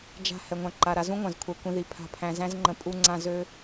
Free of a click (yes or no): no